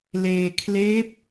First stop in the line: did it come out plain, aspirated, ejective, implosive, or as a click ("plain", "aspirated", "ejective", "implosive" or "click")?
aspirated